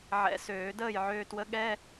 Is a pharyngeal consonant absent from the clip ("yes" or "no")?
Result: no